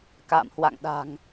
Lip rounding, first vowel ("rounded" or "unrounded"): unrounded